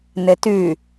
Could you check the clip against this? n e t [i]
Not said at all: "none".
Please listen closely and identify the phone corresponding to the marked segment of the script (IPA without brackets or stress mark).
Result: y